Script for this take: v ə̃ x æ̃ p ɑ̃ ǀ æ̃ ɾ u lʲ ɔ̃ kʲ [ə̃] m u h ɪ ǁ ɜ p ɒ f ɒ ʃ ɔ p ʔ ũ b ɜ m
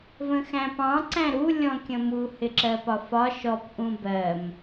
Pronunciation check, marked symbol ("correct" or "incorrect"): correct